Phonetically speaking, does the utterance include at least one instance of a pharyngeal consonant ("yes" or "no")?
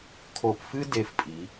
no